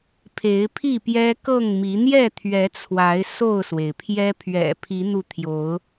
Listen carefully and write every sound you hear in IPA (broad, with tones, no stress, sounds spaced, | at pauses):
pʰ e˨˦ ɪ̯ pʰ i˥˨ p j ɛ˦ k ɤ˥˨ ŋ m i˨˦ n̪ j ɛ˥˨ t̪ʰ ɥ ɛ˨˦ t͡sʰ w a˨˦ ɪ̯ s o˥˨ ʊ̯ s w e˩ ɪ̯ pʰ j ɛ˦ pʰ ɥ ɛ̰˨˩ pʰ i˨˦ n̪ u˧ t̪ʰ j o˨˦ ʊ̯